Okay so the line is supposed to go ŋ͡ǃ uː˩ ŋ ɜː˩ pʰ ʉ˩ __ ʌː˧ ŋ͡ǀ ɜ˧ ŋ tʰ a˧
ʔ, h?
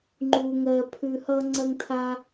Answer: h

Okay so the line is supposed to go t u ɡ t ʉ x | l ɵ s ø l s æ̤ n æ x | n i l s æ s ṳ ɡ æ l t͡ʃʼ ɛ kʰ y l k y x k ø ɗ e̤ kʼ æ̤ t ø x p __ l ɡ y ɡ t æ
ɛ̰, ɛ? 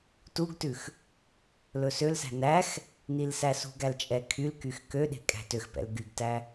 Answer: ɛ̰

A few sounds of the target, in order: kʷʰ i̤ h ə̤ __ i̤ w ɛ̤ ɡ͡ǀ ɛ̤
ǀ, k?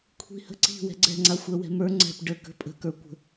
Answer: ǀ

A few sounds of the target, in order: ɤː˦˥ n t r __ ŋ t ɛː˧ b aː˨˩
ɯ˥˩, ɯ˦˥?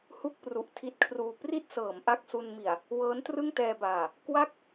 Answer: ɯ˥˩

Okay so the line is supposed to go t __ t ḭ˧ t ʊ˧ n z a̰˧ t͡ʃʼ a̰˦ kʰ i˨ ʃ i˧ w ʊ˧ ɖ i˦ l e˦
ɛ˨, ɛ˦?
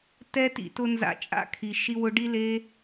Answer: ɛ˦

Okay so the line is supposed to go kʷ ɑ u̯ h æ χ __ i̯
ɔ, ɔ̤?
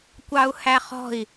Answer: ɔ̤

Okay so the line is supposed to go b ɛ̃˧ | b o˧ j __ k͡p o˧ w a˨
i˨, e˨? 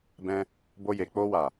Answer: e˨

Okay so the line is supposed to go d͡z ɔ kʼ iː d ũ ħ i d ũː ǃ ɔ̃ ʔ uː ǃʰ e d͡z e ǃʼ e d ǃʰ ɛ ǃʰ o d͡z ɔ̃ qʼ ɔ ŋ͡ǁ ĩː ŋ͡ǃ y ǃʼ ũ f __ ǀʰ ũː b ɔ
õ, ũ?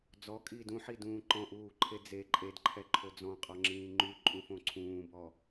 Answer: õ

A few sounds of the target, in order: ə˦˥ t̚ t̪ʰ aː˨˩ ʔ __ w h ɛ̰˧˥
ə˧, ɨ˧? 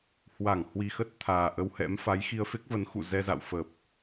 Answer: ə˧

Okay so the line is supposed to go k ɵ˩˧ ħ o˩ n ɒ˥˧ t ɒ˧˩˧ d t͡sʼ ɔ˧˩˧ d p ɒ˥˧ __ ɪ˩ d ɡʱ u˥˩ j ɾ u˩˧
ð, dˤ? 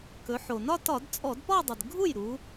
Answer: dˤ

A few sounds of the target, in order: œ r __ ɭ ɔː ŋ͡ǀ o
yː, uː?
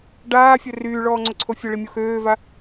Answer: yː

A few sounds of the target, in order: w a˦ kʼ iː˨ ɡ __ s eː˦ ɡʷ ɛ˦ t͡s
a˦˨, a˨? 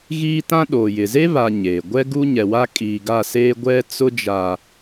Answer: a˦˨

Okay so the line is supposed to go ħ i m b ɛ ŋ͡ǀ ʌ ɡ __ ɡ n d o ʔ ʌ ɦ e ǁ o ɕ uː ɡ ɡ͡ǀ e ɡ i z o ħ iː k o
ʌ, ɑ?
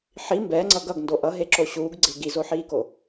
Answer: ʌ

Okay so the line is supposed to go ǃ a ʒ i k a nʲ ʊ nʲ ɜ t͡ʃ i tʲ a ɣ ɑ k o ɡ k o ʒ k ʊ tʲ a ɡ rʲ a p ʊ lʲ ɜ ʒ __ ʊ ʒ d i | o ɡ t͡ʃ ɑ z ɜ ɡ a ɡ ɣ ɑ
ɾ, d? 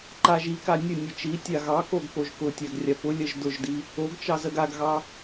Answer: d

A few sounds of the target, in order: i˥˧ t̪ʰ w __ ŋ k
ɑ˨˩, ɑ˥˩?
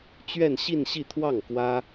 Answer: ɑ˥˩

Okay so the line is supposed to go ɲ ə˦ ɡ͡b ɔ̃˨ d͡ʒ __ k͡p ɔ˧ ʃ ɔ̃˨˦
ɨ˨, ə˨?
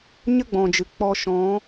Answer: ɨ˨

